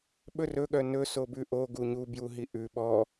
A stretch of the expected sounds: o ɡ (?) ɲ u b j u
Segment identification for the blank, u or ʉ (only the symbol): u